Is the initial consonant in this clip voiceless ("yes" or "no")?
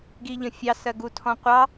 no